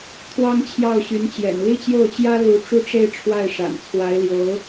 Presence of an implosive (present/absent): absent